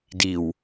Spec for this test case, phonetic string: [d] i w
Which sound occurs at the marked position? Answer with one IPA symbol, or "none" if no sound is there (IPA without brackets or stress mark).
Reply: d